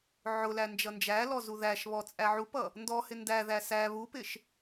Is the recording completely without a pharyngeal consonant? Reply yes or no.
no